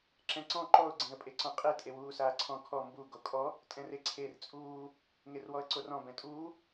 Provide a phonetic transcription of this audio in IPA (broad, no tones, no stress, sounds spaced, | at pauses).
ǁ ɛ̃ ǀ ɔ̃ ǃ ɔ ʊ̯ ɡ͡ǀ ẽ ə̯ pʼ e ǀ ɔ̃ qʼ e tʼ e w uː s aː ǀʰ ɔ̃ kʰ ɔ m b u ɡ o kʼ ɔ | tʼ ɛ̃ r e ǀʰ e r t͡sʼ uː | ŋ e r w ɔ ə̯ ǀ o r ɔ̃ b ɛ̃ tʼ uː